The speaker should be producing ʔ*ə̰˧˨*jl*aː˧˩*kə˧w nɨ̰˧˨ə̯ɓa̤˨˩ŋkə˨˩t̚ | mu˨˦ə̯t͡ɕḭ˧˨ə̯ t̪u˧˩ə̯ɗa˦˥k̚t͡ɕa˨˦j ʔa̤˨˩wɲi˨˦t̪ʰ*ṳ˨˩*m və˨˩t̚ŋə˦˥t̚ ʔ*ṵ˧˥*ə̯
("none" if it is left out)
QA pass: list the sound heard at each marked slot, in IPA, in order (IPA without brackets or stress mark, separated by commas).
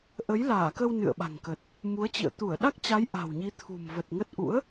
ə˨˦, aː˧˩, ṳ˨˩, ṵ˧˥